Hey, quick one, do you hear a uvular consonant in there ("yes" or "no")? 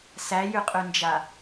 yes